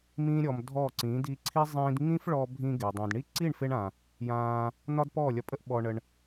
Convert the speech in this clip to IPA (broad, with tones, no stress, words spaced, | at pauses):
mĩː˦ɾʲɔ˧mdʱɔː˦˨ǀĩː˨˦ di˧ǀʰi˦ zˤĩː˧dŋĩ˦fɭɔː˧ bʱĩː˧ɡe˨dˤĩː˨dɳi˦ ǀi˦˨ɳfe˧ɳã˨ | jãː˧ | nɒ˦dpɔː˦˨lʲɒ˧pʼə˦ʔ ɓɔ˧ɳə˧ɳ